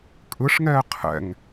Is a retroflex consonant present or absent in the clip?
present